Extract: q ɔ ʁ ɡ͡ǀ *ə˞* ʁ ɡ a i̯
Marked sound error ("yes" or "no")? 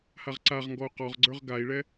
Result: no